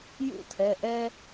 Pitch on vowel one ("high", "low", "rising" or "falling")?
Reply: falling